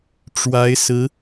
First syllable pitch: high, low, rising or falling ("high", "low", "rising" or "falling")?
rising